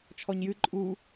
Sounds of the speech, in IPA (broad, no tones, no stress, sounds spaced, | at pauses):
t͡ʃʰ ɔ ɲ j ɨ ǃʼ u